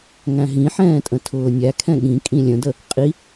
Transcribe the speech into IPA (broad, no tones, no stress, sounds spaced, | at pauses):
ŋ æ̃ ɦ ĩ ħ ɛ̃ː tʼ ə̃ tʰ ʊː nʲ æ kʰ ɛ̃ ɠ ĩ kʼ ĩ lʲ ə̃ d ə | qʼ i